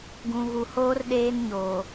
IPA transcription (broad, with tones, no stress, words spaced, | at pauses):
ɡũ˨ɣu˨hoː˦r ɗeː˦nɲoː˨